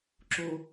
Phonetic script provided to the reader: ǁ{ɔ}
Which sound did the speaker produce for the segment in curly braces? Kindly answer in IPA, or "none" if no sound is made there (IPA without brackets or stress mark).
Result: o